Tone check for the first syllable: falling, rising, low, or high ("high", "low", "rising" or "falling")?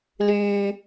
low